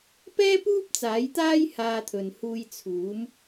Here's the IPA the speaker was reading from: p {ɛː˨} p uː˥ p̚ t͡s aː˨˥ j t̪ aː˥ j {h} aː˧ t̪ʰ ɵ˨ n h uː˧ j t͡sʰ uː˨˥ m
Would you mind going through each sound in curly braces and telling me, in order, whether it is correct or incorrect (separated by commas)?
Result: incorrect, correct